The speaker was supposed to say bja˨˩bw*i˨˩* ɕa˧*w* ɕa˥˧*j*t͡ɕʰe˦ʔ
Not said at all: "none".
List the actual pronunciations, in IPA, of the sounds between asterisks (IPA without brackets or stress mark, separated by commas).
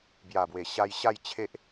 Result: e˨˩, j, j